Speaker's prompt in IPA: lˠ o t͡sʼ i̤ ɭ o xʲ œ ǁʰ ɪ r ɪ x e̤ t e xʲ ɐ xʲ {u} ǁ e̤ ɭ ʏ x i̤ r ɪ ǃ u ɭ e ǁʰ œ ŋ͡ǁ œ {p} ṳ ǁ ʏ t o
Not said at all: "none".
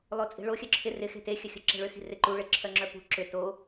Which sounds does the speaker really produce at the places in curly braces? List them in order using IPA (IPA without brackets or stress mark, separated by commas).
u, p